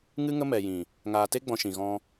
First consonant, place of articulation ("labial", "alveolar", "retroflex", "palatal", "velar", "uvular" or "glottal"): velar